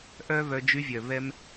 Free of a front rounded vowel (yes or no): no